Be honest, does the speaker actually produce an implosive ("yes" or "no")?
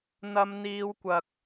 no